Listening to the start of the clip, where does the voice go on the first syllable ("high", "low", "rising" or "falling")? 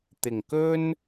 low